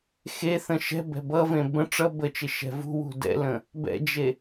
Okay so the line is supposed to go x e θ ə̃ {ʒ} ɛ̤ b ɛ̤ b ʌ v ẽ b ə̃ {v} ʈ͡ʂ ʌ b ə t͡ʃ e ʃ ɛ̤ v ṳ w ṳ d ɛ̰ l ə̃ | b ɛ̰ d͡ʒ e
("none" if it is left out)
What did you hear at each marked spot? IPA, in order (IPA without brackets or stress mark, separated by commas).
ʃ, none